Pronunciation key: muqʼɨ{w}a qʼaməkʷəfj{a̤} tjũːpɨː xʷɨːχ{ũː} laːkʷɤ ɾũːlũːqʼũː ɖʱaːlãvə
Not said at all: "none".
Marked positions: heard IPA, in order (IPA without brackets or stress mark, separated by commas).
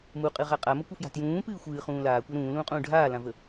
ʁ, a̤, ũː